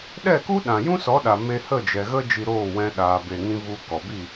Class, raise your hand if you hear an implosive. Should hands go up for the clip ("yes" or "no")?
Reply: yes